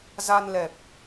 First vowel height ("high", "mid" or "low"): low